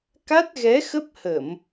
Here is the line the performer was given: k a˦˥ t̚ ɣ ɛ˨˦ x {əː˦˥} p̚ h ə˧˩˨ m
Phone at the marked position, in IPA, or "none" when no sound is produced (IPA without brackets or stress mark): ə˦˥